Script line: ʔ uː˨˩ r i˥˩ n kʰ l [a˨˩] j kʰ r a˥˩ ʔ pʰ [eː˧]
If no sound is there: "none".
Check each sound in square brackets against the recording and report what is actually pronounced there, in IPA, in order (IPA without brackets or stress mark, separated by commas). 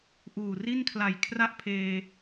a˨˩, eː˧